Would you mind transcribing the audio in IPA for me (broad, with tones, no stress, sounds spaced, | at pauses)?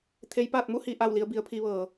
t̪ʰ e˧˥ j p aː˥˨ t̚ m u˥˨ h iː˩ ʔ aː˧˩ w l i˧ ə̯ b i˩˧ ə̯ pʰ i˧ ʋ ɤː˩